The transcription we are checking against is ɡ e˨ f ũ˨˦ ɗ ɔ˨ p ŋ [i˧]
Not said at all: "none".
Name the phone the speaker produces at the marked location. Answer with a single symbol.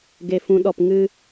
ɨ˧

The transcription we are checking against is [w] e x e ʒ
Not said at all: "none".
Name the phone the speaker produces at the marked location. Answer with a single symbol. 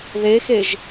ð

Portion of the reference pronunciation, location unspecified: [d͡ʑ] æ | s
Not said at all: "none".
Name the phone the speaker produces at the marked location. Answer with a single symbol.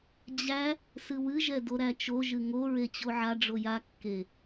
d͡ʑ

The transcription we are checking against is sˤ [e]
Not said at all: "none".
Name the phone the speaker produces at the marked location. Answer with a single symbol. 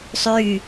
y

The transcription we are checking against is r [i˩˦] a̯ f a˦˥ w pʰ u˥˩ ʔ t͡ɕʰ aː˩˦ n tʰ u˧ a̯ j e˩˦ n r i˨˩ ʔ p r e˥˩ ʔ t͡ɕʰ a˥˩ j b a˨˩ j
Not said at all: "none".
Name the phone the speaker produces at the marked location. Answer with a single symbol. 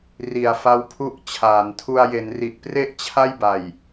i˩˦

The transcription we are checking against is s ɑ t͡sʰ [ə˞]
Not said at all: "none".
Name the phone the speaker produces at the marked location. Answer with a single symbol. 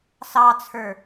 ə˞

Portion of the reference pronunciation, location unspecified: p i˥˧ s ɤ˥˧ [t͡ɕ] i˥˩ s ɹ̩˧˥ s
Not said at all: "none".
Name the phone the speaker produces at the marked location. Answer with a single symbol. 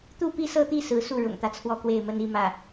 t̪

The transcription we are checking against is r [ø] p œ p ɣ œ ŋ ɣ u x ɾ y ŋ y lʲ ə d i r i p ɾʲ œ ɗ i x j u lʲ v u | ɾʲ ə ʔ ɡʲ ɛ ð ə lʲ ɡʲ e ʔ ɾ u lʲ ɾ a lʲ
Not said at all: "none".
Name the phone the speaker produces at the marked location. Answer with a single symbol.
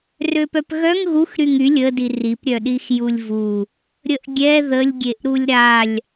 ø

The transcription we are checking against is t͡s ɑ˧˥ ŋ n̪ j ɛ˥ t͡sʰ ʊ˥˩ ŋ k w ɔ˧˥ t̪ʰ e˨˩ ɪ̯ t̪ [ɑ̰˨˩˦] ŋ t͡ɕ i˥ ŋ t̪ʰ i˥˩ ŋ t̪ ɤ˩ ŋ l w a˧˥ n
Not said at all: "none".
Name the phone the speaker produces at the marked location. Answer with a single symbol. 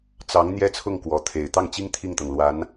ɑ˥˩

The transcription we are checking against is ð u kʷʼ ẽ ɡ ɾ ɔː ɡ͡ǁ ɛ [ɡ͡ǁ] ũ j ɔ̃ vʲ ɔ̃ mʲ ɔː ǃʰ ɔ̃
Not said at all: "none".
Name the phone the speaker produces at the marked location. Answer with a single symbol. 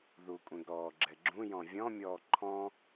ɡ͡ǁ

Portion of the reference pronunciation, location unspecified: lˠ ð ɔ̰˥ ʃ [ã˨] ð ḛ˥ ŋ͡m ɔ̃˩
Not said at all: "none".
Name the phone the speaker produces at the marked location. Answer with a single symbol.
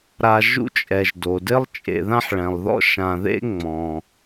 ã˨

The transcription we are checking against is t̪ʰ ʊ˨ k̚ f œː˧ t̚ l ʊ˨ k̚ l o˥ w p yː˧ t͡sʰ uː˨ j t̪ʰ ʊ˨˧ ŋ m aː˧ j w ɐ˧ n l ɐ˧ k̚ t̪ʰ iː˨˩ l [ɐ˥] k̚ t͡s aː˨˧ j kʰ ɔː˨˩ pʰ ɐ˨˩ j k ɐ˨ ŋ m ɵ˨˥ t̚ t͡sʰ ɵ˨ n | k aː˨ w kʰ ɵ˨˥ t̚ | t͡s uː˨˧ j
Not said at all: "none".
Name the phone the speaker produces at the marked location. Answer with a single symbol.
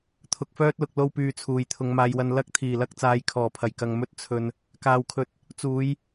ɐ˧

